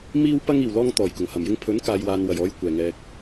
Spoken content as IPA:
m iː˧ w p ɐ˧ ŋ iː˨˩ w l ɔː˧ ŋ t̪ ɔː˨˩ j k ʊ˨˩ ŋ h ɐ˨˩ m j ɪ˧ ŋ pʰ ɵ˨˥ n k aː˨ j w aː˨ n w ɐ˨˩ j ɔː˨ j kʷ ɛː˨˩ ŋ ɛː˨ k̚

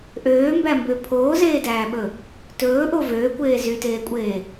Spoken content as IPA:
ʔ øː m b æ m b ø pʰ oː z eː d æː ɓ ɵ | t ɵː ʔ o v øː kʷ eː z y t eː kʷʼ eː

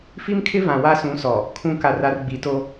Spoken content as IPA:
f i˦ m kʰ ɪ˦ v ã˨ w a˦ s ũ˨˦ s ɔ˨ | kʰ ũ˦˨ k a˦˨ r a˦ r ɡ͡b i˨˦ t o˦

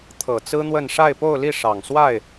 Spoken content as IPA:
t̪ʰ ɤ˨˩ t͡s ɹ̩˥ n̪ w ə˥˧ n ʂ a˥˧ ɪ̯ p o˥˧ ʊ̯ l i˥˩ ʂ ɑ˨˩ ŋ s w a˥˩ ɪ̯

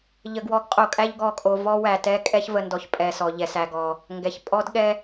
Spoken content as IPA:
ʎ ə˨ ɡ w ɔ˨˦ ɡ qʼ o˨ kʼ æ˦ ʎ ɡ ɔ˨ kʼ o˨ v ɔ˦ w æ˨ t ɛ˦ kʼ ɛ˦ ç v ə˨ n d ɔ˨ ç pʼ ɛ˨ s ɔ˨ ʎ ɛ˨ s æ˨ ɡ ɔ˨ | ŋ ɡ ɛ˨ ç pʼ ɔ˦ d ɠ ɛ˦

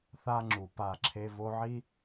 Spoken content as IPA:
θ a˦ ŋ͡ǁ u˨ p a˦˨ ǁʰ e˦ v o˦ ʕ i˦

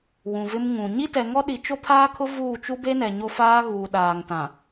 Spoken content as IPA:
w ũ˨ v ɪ˦ m ŋ ũ˨ ɲ i˦ t ɛ˨ ŋ ɔ˦ ɗ i˨ t͡ʃ o˦ pʰ aː˦ kʰ ʊ˦ v uː˦˨ t͡ʃ u˦ b e˦ n ɛ˨ ɲ o˦ f aː˦ ɣ uː˨ ɗ aː˨ ŋ t ã˨

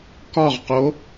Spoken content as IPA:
k ɒ ʁ q o

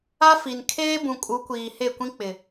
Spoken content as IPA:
a˦ f i˨ n kʰ eː˦ b ũ˨ kʼ u˨˦ kʷ iː˨ h e˦˨ kʷ ĩ˦ k͡p ɪ˨

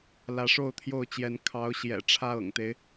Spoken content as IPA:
l ä˨˦ ʂ o˥˨ ʊ̯ t̪ʰ j o˥˨ ʊ̯ t͡ɕ j ɛ˨˦ n kʰ ɑ˨˦ ʊ̯ ɕ j ɛ̰˨˩ ʈ͡ʂʰ ä˦ ɤ̰˨˩ ŋ t̪ e˦ ɪ̯

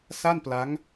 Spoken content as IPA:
s a˥˩ n p l a˦˥ ŋ

